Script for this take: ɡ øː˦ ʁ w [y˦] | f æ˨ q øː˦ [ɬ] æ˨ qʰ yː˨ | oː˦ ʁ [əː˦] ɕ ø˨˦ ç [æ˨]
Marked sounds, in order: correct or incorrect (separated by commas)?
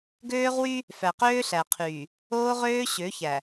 correct, correct, incorrect, correct